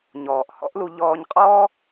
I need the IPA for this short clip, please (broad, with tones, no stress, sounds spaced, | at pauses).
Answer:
ɲ ɔː˩ ʔ h ɔ̰˥ ʔ l u˧ ʎ ɔː˧ ɲ qʼ ɔː˥